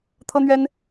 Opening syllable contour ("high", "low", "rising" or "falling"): high